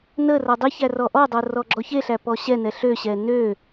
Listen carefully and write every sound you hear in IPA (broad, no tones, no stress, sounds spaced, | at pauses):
n ə r ʌ dˤ i ç æ r ɔ ʔ ɔ dˤ o r ɔ ɡ͡ǁ ɔ ç e ɬ æ p ɔ ɕ ɛ n ɛ ɬ ø ɕ ɛ n ø